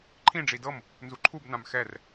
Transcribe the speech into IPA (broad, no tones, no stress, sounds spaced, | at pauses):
ǃʰ ĩ ɖ͡ʐ i d ɤ m | n z u ǃʰ u b n ã m x ɛ r